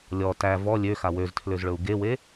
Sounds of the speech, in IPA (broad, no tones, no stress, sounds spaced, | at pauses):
lʲ ɔ t æ v ɔ lʲ ø x a w ø z tʰ l ø z ɭ ɵ u̯ ɡ e w e